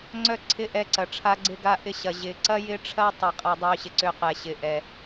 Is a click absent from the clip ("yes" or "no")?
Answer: no